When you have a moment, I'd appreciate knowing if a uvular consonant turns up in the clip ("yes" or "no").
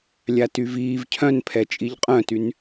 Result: yes